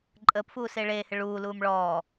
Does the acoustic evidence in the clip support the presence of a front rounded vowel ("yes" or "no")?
no